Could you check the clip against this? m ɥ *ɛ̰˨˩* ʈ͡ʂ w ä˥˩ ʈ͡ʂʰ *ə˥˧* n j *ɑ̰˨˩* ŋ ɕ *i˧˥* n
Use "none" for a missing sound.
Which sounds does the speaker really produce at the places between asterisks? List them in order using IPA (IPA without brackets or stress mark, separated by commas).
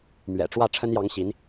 ɛ̰˨˩, ə˥, ɑ˧˥, i˧˥